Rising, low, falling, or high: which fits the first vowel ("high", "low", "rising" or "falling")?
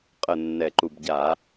low